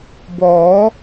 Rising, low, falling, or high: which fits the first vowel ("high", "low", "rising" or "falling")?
rising